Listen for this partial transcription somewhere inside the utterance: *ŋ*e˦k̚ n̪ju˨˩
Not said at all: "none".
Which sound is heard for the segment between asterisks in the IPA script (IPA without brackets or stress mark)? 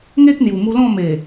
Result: ŋ